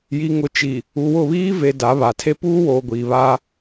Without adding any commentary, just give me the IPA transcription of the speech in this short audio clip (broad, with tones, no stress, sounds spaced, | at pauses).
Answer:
j i˨ ŋ ʊ˨ t͡ʃ i˨ | u˨ w ʊ˦˨ β iː˦ v e˨ d a˨˦ β a˨ tʰ e˦ p uː˦ w oː˨ ɡʷ iː˨ β a˦